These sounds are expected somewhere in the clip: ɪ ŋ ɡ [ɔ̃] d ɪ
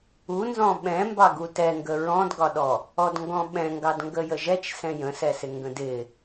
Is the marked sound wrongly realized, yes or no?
yes